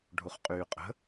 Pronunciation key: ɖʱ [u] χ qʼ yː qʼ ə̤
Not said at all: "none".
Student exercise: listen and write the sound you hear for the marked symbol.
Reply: u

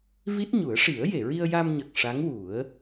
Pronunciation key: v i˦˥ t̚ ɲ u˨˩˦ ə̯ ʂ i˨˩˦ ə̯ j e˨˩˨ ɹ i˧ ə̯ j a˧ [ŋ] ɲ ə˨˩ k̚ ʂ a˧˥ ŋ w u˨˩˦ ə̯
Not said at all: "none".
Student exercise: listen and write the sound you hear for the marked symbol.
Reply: m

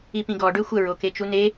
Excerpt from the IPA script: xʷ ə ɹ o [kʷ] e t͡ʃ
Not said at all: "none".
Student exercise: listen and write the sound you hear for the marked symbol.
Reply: k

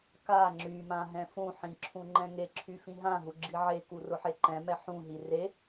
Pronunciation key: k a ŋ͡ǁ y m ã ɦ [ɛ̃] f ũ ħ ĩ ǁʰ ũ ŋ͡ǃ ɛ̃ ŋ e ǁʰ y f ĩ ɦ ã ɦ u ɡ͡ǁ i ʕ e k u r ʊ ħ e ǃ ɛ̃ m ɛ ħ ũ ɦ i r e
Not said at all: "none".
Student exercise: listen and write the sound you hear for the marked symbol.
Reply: ɛ̃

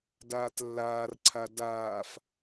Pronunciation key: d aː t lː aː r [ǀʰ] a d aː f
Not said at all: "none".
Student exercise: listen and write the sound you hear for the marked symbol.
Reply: ǀʰ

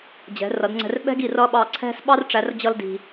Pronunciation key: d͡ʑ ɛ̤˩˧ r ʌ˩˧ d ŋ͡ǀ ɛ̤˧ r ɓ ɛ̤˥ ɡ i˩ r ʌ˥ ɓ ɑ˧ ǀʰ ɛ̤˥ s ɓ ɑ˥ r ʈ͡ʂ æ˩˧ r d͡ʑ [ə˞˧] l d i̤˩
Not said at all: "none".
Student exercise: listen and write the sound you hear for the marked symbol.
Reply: ʌ˧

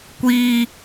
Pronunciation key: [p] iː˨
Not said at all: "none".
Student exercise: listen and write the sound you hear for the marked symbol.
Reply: kʷ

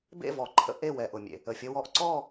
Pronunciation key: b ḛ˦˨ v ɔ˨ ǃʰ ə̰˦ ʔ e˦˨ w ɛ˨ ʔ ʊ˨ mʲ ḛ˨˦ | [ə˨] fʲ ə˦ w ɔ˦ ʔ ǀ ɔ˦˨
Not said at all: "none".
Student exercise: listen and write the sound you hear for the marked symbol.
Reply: ə˨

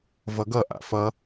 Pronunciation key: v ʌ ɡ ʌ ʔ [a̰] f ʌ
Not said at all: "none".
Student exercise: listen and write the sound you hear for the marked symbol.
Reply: a̰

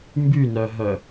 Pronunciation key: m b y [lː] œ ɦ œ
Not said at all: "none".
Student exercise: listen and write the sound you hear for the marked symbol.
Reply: n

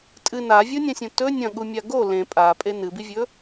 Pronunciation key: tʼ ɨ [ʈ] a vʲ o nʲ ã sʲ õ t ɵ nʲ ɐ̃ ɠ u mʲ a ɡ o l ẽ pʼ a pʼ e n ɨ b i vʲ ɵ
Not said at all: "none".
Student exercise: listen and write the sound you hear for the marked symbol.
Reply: n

